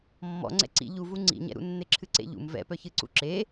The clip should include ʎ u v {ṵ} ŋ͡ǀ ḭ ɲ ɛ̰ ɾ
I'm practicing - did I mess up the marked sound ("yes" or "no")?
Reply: yes